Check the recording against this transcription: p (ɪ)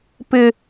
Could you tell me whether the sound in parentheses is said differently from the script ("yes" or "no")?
no